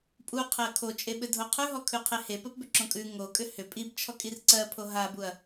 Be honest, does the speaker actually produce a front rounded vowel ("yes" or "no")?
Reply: yes